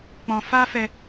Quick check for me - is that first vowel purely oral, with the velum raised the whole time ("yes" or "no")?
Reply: no